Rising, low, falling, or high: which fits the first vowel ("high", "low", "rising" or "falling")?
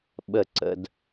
falling